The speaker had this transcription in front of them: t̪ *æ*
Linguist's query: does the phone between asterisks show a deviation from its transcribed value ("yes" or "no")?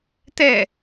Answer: yes